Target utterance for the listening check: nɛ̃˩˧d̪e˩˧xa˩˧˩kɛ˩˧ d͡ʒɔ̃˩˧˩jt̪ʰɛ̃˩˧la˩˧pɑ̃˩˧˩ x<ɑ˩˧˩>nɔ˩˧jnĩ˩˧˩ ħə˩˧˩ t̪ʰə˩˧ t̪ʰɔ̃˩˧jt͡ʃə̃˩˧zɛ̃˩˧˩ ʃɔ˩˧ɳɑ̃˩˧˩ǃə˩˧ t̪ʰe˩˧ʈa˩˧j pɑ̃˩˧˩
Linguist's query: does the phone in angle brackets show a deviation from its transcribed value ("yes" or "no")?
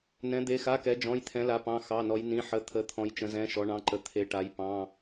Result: no